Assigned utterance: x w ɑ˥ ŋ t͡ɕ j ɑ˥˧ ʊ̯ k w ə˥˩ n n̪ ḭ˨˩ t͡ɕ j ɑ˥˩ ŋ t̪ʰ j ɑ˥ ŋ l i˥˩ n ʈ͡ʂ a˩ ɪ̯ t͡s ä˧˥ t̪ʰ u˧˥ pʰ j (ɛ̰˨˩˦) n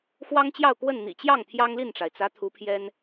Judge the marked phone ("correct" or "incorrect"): incorrect